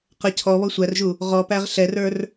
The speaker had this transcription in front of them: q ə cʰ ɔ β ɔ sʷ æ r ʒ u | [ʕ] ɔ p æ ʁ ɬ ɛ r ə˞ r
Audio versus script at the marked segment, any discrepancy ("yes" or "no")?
yes